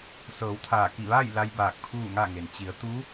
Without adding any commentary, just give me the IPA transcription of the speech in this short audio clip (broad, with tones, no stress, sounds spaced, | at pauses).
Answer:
s ɤː˩˧ w t̪ʰ aː˧˩ k i˧˩ ʋ aː˥˨ j l a˧ j b aː˧˩ k̚ pʰ uː˥˨ ŋ a˥˨ ŋ e˩ n t͡ɕ i˩˧ ə̯ t̪ u˧˥